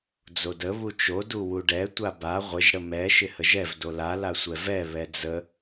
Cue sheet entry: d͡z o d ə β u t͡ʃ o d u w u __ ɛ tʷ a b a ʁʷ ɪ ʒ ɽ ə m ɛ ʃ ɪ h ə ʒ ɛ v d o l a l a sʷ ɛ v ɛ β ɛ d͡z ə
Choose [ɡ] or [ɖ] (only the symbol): ɖ